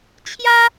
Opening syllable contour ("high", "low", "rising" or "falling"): high